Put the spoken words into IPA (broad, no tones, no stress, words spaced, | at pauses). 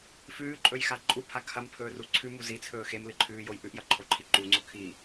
fʉːǃʼɵjxa ǃʼupʰa kʰɐmpʰɵːru ǀʰʉmu zit͡sʰɵː xemlɨǃʰʉːjoj ʔʉʔjɐǃʰoǃʰi ǃuŋ͡ǀo kʰi